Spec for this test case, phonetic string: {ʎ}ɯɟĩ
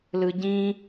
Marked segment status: incorrect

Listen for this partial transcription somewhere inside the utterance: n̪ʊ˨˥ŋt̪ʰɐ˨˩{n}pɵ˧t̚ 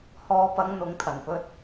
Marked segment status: correct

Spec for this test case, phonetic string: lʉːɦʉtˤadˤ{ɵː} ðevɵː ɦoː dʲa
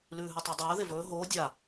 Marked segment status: correct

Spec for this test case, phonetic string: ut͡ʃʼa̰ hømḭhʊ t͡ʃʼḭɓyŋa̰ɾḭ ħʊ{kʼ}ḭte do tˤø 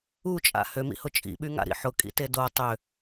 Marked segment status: correct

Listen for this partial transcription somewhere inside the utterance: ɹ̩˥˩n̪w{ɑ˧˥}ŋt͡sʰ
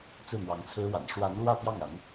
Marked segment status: correct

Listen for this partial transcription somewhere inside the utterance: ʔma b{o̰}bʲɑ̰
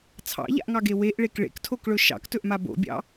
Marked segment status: correct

